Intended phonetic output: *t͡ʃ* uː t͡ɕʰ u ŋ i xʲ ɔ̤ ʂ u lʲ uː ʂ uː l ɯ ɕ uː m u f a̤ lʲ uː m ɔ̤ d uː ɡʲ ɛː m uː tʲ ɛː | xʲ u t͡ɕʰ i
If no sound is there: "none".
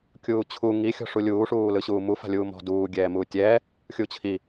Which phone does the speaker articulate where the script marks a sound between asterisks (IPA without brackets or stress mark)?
kʲ